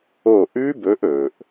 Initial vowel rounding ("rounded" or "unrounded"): rounded